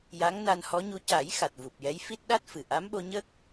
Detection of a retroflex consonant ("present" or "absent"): absent